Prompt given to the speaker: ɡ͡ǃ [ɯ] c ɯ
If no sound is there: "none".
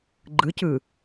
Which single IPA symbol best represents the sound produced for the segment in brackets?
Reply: ɯ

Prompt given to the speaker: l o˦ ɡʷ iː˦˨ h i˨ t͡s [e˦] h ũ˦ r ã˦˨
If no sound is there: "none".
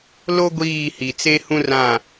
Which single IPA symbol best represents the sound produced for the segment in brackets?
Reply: e˦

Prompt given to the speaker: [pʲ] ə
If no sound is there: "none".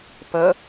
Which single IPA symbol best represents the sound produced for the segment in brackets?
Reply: p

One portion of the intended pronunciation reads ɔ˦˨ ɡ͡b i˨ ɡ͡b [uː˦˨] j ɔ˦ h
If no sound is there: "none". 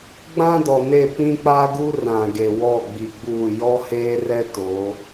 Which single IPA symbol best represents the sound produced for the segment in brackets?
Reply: uː˦˨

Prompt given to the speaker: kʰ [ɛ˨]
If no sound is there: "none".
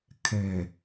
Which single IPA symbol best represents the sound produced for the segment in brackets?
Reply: ɛ˨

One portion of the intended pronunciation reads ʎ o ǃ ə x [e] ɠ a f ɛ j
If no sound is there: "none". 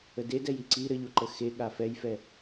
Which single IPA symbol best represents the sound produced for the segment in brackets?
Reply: e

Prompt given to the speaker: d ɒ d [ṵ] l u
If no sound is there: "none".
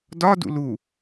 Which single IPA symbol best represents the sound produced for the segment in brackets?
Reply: ṵ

